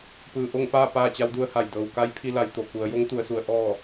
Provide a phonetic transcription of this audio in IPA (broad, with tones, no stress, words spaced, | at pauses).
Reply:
pɯː˩ ʔo˥˨ŋpaː˥˨ paː˥˨t͡ɕa˧˥wdu˧ə̯ha˧˩j dɤː˩wka˧˥j pʰi˧la˩˧j t̪o˩ ku˩˧ə̯jo˧˥ŋ t̪u˩˧ə̯su˩˧ə̯ ʔɔː˥˨